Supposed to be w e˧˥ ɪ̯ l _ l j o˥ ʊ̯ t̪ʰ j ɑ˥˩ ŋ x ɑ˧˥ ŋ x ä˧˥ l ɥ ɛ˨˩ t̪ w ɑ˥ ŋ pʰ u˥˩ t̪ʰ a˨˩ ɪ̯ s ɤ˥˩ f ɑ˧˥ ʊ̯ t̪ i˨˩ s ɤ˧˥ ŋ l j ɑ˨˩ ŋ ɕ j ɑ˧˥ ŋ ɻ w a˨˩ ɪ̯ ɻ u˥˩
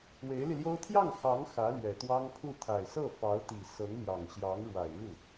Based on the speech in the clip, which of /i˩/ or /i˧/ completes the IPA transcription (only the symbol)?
i˧